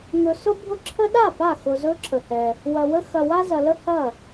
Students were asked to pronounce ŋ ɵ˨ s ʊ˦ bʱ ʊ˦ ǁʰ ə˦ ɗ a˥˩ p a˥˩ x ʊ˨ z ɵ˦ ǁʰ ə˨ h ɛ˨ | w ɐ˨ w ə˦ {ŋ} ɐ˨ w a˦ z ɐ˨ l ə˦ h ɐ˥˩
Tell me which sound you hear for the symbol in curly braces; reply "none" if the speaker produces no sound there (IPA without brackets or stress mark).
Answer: x